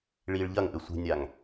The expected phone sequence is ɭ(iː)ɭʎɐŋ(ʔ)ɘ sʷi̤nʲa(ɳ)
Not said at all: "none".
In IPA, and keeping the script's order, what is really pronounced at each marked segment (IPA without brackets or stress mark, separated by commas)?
iː, ʔ, ŋ